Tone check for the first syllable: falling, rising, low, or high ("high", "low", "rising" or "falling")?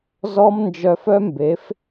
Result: high